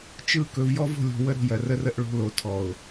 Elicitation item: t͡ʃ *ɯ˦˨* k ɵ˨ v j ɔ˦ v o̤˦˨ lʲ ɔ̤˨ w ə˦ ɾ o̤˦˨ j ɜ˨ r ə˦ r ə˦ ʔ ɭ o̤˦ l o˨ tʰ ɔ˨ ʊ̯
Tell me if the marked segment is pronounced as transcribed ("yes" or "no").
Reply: yes